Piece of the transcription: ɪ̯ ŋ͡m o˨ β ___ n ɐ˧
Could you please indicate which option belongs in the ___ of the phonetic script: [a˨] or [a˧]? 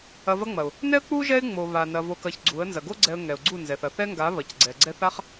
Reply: a˨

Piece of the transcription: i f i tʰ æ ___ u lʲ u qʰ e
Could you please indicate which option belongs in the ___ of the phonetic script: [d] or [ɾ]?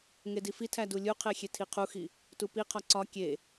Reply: d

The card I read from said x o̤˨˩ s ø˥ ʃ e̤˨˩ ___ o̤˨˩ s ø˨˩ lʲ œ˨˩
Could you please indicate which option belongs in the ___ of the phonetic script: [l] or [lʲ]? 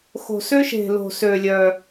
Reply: l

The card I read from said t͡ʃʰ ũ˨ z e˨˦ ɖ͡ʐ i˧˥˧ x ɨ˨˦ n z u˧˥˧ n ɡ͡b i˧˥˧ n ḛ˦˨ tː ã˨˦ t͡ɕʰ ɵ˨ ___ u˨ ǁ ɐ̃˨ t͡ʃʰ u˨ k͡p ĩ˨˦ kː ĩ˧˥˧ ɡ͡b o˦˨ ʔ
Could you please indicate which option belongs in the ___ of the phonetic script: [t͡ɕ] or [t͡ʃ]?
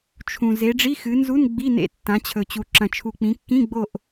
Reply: t͡ɕ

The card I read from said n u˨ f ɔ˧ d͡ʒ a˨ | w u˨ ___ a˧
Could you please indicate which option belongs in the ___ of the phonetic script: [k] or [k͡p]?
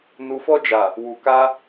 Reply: k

